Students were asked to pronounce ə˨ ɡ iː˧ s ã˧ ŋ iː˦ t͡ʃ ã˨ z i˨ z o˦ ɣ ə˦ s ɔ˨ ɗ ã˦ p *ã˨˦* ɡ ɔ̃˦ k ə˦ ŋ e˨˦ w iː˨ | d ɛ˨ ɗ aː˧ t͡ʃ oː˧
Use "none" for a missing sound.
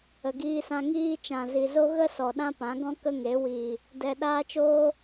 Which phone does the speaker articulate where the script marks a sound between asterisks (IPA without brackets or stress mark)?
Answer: ã˨˦